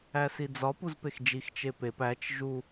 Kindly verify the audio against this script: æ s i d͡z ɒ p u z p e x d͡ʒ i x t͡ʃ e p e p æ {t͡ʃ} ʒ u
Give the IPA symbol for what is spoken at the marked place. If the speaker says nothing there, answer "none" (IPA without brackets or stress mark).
t͡ʃ